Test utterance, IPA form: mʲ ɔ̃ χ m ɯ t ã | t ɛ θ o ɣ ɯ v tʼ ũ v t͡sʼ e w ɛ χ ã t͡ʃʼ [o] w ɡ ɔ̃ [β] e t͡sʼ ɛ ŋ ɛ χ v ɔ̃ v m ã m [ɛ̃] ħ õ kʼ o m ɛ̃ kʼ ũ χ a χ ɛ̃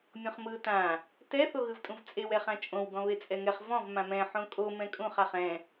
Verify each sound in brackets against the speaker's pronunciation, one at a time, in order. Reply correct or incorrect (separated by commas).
incorrect, correct, correct